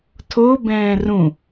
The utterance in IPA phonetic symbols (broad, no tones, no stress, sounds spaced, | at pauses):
tʰ o b ɛ̃ː r ũ